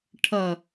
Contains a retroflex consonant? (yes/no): yes